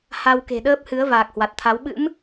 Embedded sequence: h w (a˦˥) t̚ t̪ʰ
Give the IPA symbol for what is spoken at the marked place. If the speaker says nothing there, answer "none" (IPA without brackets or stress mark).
a˨˩